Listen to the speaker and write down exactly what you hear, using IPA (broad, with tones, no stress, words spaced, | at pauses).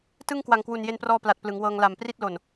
tɯ˥˩ŋ kwa˨˩ŋkwu˨˩n je˧nprɔː˧ pla˨˩t̚plɯ˩˦ŋwɤː˧ŋ la˨˩mpri˥˩t̚lo˨˩n